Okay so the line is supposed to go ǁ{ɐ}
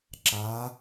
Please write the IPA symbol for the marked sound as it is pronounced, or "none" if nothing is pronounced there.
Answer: a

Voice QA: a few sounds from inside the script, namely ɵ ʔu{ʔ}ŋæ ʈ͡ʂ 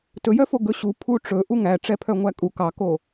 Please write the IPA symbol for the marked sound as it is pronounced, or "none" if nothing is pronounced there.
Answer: none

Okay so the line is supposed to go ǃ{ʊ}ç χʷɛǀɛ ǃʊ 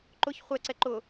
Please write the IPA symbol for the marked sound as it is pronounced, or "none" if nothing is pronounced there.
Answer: ʊ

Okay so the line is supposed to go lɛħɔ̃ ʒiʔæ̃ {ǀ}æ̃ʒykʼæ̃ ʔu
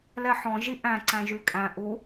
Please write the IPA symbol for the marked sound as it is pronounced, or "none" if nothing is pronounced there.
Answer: ǀ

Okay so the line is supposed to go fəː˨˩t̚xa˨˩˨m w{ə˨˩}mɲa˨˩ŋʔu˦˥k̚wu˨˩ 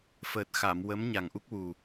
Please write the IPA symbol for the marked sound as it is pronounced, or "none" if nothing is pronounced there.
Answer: ə˧˥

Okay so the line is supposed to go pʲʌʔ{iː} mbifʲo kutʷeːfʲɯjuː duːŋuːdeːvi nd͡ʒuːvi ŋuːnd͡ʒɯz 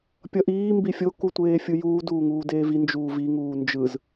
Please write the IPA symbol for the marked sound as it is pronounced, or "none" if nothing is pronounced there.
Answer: iː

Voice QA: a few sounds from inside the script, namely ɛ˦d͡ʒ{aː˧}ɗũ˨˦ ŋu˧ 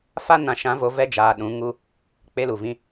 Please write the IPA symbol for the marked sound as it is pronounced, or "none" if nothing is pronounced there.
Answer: aː˧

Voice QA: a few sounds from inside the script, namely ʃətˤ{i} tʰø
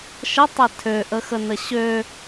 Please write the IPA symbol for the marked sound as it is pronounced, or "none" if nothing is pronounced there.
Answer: e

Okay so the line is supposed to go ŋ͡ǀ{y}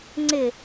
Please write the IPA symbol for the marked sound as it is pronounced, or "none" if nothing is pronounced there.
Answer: ɪ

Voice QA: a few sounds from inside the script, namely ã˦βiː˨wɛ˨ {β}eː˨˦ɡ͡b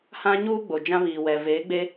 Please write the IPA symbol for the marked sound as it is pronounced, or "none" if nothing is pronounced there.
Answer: v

